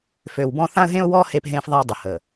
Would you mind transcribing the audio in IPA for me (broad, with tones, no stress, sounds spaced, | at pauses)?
f ø˨ w b ɔ̃˦ θ ã˦ ə̯ ɦ ẽ˦ ʊ̯ w ɔ˦ h e˦ p ɦ ẽ˦ f ðˤ a˦ dˤ ə˨ h ə˨